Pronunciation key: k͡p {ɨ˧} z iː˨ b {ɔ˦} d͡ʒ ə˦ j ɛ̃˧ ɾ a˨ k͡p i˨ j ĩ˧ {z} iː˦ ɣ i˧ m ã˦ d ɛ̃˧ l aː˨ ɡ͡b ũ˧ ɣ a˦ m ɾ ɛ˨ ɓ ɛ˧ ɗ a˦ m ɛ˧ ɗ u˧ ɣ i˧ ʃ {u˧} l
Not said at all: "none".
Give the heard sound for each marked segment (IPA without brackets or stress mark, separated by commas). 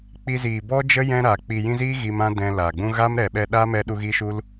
i˧, ɔ˦, z, u˧